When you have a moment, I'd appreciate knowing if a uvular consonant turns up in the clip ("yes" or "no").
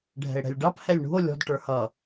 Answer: no